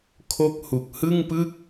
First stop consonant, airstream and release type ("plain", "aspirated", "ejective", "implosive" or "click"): aspirated